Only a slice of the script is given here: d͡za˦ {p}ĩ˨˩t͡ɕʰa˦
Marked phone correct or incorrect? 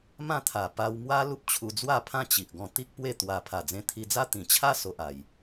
incorrect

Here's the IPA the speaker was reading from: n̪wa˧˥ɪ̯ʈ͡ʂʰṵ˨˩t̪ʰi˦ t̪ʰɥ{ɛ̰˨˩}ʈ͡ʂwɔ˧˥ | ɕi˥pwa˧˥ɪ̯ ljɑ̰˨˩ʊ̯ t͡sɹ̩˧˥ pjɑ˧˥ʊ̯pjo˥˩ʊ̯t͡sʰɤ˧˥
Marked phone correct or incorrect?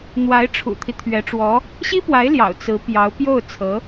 incorrect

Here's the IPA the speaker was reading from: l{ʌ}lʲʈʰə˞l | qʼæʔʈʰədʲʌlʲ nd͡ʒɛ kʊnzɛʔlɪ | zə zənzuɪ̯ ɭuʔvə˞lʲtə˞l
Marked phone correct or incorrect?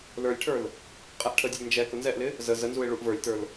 incorrect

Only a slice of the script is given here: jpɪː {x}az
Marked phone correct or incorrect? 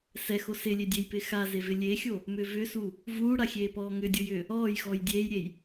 correct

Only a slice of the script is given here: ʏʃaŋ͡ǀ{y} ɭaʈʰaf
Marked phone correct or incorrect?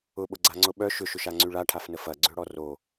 correct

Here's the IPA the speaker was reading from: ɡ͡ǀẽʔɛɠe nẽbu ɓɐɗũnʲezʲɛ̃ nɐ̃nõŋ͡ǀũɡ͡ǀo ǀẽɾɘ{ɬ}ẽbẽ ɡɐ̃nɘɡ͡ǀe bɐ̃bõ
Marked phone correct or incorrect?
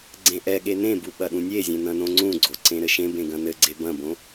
incorrect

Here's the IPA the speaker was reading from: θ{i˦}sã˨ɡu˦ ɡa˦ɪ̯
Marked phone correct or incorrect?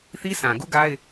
correct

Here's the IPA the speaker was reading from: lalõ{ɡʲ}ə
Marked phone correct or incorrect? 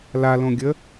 correct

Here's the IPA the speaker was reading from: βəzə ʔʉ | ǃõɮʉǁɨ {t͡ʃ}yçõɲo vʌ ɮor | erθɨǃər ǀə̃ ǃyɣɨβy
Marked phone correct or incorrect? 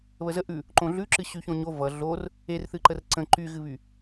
incorrect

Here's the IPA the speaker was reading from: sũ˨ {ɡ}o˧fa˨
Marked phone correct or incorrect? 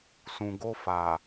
correct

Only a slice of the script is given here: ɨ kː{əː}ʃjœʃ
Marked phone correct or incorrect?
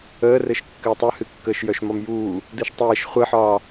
correct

